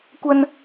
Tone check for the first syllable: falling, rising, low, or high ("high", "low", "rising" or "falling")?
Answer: high